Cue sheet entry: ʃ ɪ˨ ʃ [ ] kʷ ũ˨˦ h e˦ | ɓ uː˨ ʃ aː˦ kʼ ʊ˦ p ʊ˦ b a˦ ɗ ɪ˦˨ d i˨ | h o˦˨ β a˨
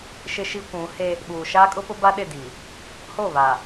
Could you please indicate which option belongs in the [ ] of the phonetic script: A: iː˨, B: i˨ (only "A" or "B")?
B